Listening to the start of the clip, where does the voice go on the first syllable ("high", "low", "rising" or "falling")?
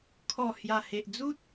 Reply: low